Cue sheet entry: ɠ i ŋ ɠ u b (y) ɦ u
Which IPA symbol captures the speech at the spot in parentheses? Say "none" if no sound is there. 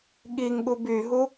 y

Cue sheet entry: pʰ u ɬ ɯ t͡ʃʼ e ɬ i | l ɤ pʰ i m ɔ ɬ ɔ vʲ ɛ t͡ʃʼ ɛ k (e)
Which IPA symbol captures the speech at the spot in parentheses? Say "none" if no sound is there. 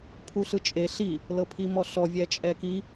i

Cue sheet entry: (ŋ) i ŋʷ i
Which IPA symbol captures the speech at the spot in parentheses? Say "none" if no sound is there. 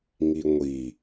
ŋ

